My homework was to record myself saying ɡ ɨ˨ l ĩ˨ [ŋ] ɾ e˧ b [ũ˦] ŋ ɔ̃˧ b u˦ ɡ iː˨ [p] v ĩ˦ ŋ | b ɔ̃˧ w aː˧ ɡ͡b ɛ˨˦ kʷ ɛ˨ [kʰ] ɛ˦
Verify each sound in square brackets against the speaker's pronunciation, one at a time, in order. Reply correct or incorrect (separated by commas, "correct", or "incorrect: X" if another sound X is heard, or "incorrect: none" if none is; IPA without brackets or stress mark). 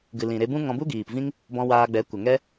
incorrect: none, correct, correct, incorrect: ŋ